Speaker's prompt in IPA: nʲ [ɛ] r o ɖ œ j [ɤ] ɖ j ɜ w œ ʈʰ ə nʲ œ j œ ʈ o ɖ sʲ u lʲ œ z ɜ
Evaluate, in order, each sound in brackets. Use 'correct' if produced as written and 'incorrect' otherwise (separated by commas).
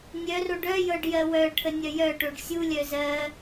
incorrect, correct